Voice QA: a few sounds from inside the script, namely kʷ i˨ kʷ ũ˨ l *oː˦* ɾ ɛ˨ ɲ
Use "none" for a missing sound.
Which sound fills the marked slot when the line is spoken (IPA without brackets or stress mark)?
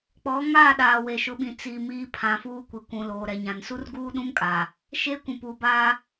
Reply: oː˨